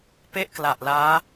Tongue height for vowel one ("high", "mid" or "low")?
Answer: mid